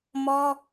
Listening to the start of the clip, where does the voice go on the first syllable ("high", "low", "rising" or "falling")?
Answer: high